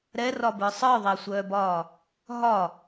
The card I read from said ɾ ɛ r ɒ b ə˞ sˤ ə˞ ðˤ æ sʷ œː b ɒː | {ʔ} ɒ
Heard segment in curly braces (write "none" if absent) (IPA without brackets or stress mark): ɦ